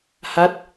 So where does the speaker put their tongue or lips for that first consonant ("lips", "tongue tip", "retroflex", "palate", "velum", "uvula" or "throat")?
throat